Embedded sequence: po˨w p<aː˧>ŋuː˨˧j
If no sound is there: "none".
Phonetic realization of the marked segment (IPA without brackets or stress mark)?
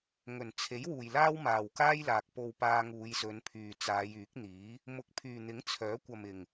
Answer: aː˧